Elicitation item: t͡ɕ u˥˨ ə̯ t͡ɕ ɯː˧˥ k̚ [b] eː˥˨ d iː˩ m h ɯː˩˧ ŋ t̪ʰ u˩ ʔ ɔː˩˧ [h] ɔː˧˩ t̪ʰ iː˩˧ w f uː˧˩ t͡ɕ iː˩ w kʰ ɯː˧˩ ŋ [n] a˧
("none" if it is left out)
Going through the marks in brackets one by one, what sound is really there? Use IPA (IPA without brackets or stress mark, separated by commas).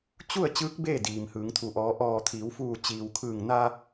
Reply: b, ʔ, n